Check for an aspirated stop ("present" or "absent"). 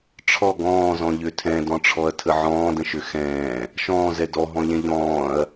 present